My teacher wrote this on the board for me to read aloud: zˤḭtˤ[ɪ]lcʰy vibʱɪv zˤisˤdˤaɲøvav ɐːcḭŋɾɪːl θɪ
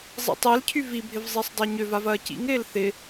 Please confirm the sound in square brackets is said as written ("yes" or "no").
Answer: no